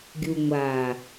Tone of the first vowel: low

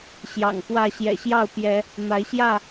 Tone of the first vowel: low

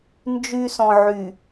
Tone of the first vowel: high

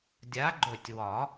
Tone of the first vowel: rising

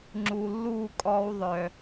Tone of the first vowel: low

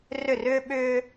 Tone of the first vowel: falling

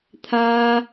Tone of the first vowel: high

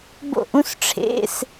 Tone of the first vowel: falling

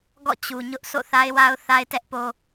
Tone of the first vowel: falling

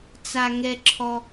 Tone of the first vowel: high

